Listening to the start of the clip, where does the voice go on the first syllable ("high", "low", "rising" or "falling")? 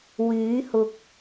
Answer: rising